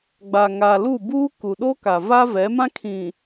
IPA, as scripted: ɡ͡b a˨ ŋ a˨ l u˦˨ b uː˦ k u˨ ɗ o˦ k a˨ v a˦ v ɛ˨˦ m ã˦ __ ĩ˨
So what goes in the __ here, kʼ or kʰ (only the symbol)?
kʰ